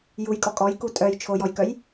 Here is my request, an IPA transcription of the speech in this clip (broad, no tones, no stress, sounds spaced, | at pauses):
j u j kʼ ɔ kʼ ɔ j k u tʼ œ j t͡ʃʰ o j ɔ j k œ j